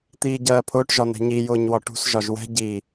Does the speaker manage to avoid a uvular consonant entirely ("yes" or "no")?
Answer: yes